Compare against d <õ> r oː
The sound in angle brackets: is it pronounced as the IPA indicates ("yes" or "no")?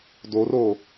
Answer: no